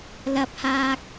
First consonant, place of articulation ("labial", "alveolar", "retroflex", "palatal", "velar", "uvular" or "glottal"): alveolar